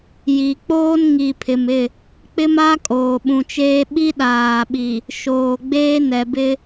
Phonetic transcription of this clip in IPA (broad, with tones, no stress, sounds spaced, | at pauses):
j i˨ k͡p oː˦ n ŋ i˨ pʰ ɪ˨ m ɪ˦˨ | k͡p ɪ˦ m a˦ kʼ oː˨ ɓ ũ˨ t͡ʃ eː˦ ɓ i˦ ɗ aː˨ ɓ i˨ | ʃ oː˨ ɡ͡b eː˦ n ɛ˨ b ɪ˦